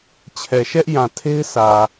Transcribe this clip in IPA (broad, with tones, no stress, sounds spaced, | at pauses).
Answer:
t͡ɕʰ ɛ˨ ʃ ɛ˦ ʔ j ã˨ tʰ e˦ ɪ̯ s ä˨